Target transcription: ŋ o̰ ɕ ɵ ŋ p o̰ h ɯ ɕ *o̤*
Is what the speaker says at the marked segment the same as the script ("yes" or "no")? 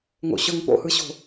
yes